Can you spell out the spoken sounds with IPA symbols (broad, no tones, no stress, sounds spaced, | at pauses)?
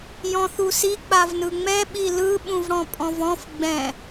j ɔ̃ θ u s i k͡p a v n ɯ ŋ͡m ɛ ɓ i l ɯ ɓ ũ v ɽ ɔ̃ pʼ ɔ̃ v ɔ̃ f ɡ͡b ɛ̃